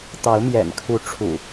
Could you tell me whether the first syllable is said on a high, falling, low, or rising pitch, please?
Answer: rising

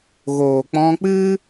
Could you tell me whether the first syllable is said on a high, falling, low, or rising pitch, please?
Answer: low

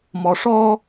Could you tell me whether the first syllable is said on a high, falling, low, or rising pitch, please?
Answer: low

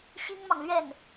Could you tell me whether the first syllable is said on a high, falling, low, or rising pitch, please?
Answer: high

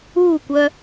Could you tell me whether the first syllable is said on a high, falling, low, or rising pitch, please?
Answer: falling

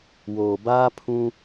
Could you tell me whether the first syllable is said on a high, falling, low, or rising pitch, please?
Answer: low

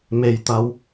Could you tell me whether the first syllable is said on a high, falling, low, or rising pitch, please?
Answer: low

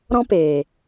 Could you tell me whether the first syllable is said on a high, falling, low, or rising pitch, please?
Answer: high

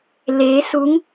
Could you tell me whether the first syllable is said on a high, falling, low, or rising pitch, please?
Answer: rising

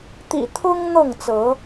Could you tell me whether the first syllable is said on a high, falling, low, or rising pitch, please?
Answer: low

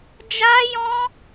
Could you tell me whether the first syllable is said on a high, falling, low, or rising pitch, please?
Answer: high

